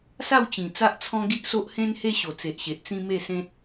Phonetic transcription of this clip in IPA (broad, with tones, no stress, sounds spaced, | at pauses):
s a˥˧ w t͡ɕ ĩ˨˩ t͡s a˦ ʔ t͡sʰ ɔ̃˦ ɡ i˦ ʔ s o˦ ʔ h ẽ˦ n h e˦ ɕ o˨˩ t͡s e˨ ʔ ɕ e˨ ʔ t͡s ĩ˦ m e˥˧ s ẽ˦ t̚